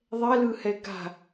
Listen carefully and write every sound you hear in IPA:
ðˤ ɛ l ɯ h ɛ ɡ a̤

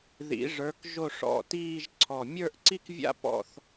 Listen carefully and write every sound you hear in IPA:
ð ḭ˩˧ ʐ ə˞˩˧ k ʒ o˧˩ ʂ ɔ̰˧˩ t iː˥˧ ʒ ǀʰ ɔ˧˩ mʲ ə˞˥˧ ʔ ǀ i˥ k vʲ a̰˥ p ɔ̰˥˧ θ

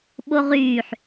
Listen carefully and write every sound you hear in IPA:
ɓ o ʁ yː ħ

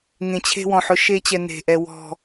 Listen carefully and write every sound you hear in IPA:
ŋ ẽ˨ t͡ɕʰ e̤˧ w ɔ̃˨ ħ ʊ˦ ʃ e˦ t͡ɕ ɛ˧ n e̤˨ ʔ ɛ˨ w ɔ̤˨

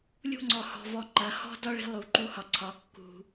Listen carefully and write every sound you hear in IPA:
lʲ ṳ˦ ŋ͡ǀ ɔ˨ h ɔ̤˨ v ɔ˨ ŋ͡ǃ ɐ˨ h ɔ̤˦ d ɒ˦ ɭ i̤˧ lˠ u˨ ǃ u˧ h ɒ˨ ǀʰ ɒ˨˦ kː ṳ˨

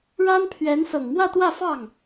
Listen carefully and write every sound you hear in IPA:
ɻ a˥ n pʰ ɥ ɛ˧˥ n s ɤ˨˩ ŋ m w ä˥˧ t̪ w ä˥˧ f ɑ˥˩ ŋ

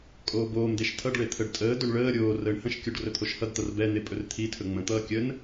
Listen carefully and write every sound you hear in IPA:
kʼ oː b oː m d e ʃ tʰ ʌ ɖ ɭ e t̪ʰ ə ɖ tʼ əː d ɵ ɳ ɭ əː ɾʲ oː r əː ɳ h ə̃ ʃ kʲ o ɖ r ɵ t̪ʰ o ʃ h ʌ d t̪ ʌ r b ɛ n̪ e pʼ ɵ r t̪ʰ i tʰ ɵ ŋ͡m ə̃ t̪ ʌː kʲ ə n

